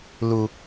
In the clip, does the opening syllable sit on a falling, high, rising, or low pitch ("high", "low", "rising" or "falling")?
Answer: low